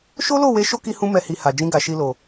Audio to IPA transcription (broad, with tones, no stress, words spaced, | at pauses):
ʃo˦lo˦˨we˧ ʃo˦ki˧hũ˧ mɛ˦hi˧ ha˨d͡ʒĩ˧ ɡa˨ʃi˧lo˨